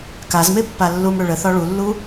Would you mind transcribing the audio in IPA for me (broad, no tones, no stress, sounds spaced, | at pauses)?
k a z m e pː a lː u m ɽ ʏ ɭ ə θ ɒ ɭ u lː u